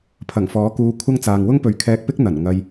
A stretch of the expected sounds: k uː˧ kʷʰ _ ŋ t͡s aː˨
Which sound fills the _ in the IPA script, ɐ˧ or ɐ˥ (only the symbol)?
ɐ˥